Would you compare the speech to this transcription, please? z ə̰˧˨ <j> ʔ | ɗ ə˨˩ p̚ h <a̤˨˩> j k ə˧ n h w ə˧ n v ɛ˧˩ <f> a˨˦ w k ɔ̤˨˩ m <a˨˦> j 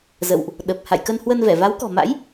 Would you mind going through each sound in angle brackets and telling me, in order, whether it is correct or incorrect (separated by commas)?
incorrect, incorrect, incorrect, incorrect